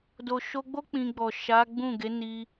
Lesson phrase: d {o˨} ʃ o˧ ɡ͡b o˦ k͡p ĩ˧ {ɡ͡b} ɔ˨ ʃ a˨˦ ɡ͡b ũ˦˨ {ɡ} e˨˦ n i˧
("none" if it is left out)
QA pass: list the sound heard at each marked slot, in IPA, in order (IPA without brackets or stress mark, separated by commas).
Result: o˨, ɡ͡b, ɡ